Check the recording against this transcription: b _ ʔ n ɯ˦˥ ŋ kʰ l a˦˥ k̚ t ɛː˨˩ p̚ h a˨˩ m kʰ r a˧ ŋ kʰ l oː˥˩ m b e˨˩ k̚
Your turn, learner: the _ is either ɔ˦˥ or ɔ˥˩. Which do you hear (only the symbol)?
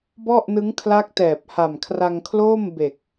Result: ɔ˥˩